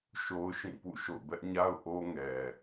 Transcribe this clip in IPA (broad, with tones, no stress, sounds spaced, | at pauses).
ʃ o˦ ʊ̯ ʃ ĩ˦˨ p ṵ˦˨ ʃ o̰˦˨ ʊ̯ b ɛ˦ ʔ ɲ a˦ ʊ̯ ʔ o˦ ŋ ɛ˨